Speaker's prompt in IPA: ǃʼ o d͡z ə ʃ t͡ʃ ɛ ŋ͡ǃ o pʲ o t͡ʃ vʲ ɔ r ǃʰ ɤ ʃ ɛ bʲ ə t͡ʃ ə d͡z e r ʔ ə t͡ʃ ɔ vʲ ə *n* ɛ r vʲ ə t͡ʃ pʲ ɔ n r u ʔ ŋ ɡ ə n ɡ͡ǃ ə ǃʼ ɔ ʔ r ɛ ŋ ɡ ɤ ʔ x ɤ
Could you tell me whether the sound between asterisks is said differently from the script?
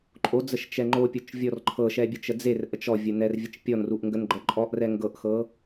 no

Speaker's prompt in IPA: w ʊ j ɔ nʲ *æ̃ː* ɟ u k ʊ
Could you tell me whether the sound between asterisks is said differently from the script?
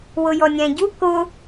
yes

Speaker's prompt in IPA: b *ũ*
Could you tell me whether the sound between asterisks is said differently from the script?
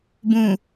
no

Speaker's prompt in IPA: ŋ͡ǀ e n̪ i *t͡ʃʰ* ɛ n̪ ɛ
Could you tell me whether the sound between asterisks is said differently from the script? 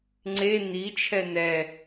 no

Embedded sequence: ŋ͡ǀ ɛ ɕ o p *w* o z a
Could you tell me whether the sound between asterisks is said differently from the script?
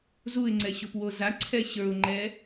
no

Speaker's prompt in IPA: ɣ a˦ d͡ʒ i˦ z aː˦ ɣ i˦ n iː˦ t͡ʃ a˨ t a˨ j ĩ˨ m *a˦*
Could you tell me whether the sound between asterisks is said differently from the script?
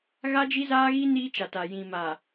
yes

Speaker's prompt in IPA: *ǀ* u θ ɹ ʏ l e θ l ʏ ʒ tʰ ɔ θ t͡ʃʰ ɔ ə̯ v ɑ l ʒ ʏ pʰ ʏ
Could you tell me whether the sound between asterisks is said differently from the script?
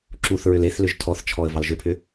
yes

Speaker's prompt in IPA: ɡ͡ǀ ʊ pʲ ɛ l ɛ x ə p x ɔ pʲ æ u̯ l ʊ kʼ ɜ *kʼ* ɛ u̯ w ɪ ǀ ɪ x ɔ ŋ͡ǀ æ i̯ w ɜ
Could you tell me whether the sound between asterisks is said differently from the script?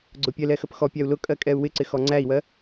no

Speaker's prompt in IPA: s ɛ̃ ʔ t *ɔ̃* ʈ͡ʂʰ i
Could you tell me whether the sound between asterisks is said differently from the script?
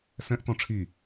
no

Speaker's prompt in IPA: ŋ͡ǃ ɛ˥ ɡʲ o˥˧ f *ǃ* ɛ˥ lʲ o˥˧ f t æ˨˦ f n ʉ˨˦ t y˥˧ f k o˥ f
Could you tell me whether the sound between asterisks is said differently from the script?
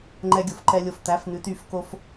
no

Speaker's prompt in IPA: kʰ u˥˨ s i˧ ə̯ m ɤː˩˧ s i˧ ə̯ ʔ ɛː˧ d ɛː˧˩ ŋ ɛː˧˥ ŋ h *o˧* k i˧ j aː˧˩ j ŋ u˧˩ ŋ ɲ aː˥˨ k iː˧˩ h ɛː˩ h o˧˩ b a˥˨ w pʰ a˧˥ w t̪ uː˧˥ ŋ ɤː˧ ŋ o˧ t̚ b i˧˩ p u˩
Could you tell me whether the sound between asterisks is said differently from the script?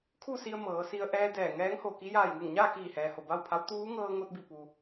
yes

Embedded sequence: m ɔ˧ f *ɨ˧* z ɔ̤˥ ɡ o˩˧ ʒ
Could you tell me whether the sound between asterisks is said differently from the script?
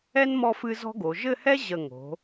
no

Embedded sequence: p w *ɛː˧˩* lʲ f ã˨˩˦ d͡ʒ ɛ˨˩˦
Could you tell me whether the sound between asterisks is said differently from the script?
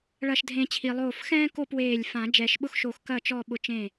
yes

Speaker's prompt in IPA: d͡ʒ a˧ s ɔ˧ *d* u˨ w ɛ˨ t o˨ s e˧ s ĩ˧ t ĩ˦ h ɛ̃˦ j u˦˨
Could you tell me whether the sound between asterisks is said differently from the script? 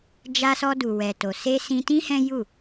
no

